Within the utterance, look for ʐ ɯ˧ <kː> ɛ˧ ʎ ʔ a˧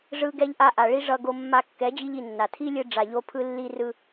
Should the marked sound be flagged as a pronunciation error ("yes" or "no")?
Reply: yes